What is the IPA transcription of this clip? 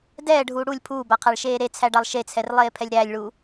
d ɛː ɖʱ uː ɽ u lʲ pʰ uː b a qʰ a ɭ ʃ eː ɾ e t͡sʰ æ ɖ a lˠ ʃ e t͡sʰ ɛ r lˠ eː pʰ ɛ lʲ ɾ æ lʲ ɭ u

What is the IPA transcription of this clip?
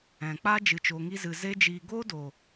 ɛ̃˨ k͡p a˦ d͡ʒ ɨ˧ t͡ʃ oː˧ ŋ i˦ z ɨ˧ z e˦ d͡ʒ iː˧ ɡ oː˦ d oː˨

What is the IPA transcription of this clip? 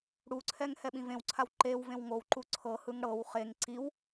ɽ u ǀʰ ɛ ŋ h ɛ ɓ ĩ v ẽ w ǀʰ a w ǃ e w v ẽ w ŋ o w ǃ u ǀʰ ɤ h ɯ ŋ ɽ ɤ w χ e ŋ ǀ i w

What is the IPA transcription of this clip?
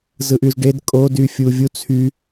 z ɯ ʔ y z ɖ e d kʼ o d y fʲ u vʲ u t͡sʰ y

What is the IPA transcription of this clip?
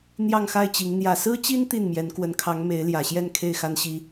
n̪ j ɑ˥˧ ŋ x a˥˩ ɪ̯ t͡ɕ i˧˥ ŋ n̪ j ä˨˩ s ɹ̩˥ t͡ɕ i˥ n t̪ i˥˩ n m j ɛ˧˥ n k w ə˧˥ n kʰ ɑ˧˥ ŋ m e˧˥ ɪ̯ l j ä˨˩ ɕ j ɛ˥˧ n kʰ e˥˩ ɪ̯ x a˥ n ɕ i˥

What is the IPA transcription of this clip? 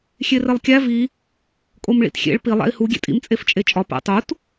xʲ e r e lˠ kʲ æ v i | kʼ o m ɭ ḭ t xʲ ḛ ɭ p i lˠ æ̰ i̯ h u ɡʲ ḛ tʼ ḭ m t͡sʼ e f t͡ʃʼ e t͡ʃʼ ɒ p æ̰ tˤ u t

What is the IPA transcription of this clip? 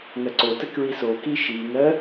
ŋ ɜ ǀ o t ə k ɹ i s o k i ʃ i ŋ ɜ

